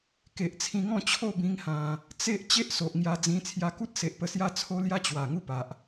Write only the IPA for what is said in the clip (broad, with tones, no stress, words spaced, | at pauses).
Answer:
ke˨ʔt͡sʰĩ˧ŋɔ̃˥˧t͡ɕʰo˥˧ bĩ˦ŋhã˧ | t͡se˦ʔ t͡ɕe˦ʔso˨ʔŋja˧d͡zĩ˧ t͡sʰja˧ku˦t̚se˨ʔ pə˧sja˦t͡sʰo˦ lja˦t͡ɕwa˨˩ ŋu˦pa˨ʔ